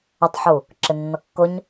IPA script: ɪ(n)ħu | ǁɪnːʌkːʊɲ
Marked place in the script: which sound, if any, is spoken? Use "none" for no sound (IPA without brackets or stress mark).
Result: tˤ